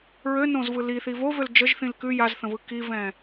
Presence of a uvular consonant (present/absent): absent